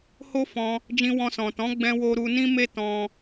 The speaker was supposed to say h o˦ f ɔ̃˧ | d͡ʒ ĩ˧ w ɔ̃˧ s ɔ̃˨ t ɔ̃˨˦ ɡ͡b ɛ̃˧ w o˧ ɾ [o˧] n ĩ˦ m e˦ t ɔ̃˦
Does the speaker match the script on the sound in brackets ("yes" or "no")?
no